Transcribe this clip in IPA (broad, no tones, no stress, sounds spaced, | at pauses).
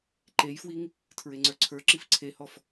ǃ e j f w i ŋ | tʰ ɹ e ŋ͡ǀ ə˞ ǀʰ ə˞ ǁ i f ǀʰ e h ɔ f